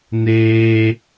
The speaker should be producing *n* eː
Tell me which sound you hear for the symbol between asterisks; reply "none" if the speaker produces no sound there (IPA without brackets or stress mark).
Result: n